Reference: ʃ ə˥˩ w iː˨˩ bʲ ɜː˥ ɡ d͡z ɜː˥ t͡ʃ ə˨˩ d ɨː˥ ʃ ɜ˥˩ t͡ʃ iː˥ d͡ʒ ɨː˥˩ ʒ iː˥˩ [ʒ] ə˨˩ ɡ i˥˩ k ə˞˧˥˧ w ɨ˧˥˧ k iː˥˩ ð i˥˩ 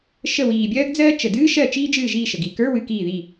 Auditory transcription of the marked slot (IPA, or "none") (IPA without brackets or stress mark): ʃ